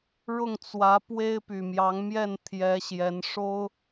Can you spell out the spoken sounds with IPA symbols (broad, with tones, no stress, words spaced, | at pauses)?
ɻʊ˥˩ŋt͡swä˧˥ pwe˥ɪ̯py˨˩mjɑ˧˥ŋ mjɛ˥˩nt̪ʰjɛ˧˥ ɕjɛ˧˥nʂo˥ʊ̯